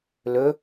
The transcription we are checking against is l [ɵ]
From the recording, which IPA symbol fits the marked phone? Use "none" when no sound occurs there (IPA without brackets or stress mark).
ɵ